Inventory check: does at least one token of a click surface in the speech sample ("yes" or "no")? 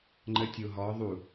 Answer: yes